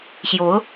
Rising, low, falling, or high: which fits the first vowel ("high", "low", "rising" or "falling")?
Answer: rising